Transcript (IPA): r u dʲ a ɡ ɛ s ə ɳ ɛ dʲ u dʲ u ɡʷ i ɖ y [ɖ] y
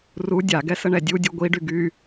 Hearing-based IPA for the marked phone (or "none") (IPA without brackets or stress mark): ɡ